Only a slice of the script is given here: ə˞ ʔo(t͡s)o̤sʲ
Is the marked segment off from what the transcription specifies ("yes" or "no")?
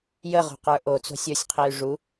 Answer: no